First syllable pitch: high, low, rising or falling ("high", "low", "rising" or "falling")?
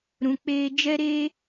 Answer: low